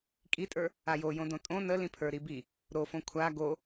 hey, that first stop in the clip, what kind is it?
ejective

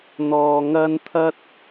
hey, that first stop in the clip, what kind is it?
aspirated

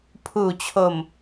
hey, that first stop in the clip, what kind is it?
aspirated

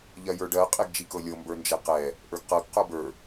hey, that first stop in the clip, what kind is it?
plain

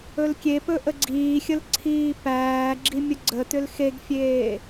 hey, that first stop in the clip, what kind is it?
plain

